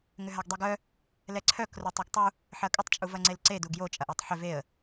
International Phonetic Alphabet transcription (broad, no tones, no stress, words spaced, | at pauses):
ŋʏɦaɡdˤeɡœ | lɛǀʰœk rotˤɛɡtˤu | ħɐkʼʏtˤ t͡ʃʼuvɐŋ͡ǀelǀe duɡjo t͡ʃʼɐʔetˤħʏ veə̯